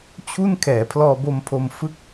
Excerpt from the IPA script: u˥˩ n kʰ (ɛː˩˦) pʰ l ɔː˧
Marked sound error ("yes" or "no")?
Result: no